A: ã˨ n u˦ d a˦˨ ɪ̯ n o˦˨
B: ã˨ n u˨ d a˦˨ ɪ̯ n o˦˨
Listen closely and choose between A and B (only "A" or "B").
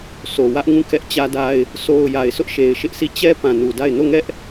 B